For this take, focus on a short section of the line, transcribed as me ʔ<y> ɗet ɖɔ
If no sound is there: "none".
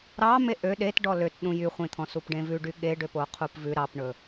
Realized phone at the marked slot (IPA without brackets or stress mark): ø